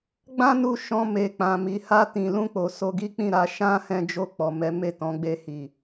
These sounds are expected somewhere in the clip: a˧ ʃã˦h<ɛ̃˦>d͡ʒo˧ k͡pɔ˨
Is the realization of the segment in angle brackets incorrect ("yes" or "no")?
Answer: yes